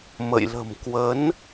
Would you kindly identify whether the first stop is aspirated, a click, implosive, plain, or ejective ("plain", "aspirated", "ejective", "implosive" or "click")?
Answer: plain